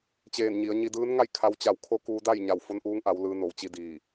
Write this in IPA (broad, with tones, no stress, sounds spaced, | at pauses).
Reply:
t͡ɕ eː˧˩ n ɲ i˩˧ ə̯ ɲ i˧ d ɯː˧˥ n ŋ a˥˨ j kʰ a˧ w t͡ɕ a˧˩ w kʰ o˧˥ k uː˧ d a˥˨ j ɲ a˧˩ w f o˧ n ʔ uː˧ ŋ ʔ a˩˧ w l ɯː˩˧ n o˩˧ w t͡ɕ i˧ d iː˧˩